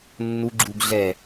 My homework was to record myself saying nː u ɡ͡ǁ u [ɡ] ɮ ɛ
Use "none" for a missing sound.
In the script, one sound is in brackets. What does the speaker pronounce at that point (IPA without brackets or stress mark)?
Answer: ɡ